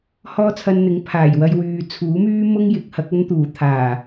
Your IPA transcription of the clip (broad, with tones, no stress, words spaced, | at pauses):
hɔː˥t͡sʰɐ˧nn̪ɪ˨˥ŋ pʰaː˨˩jwɐ˧jwyː˨ t͡sʰuː˨˥myː˥ mʊ˥ŋ jɪ˨˥k̚hɐ˨˥k̚ɐ˥nt̪uː˨˩ t̪ʰaː˨˩